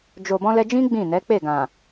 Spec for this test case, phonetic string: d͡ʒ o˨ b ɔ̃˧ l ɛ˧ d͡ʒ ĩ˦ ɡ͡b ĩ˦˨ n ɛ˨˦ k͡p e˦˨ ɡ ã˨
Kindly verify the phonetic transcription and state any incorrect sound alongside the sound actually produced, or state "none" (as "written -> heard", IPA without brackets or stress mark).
none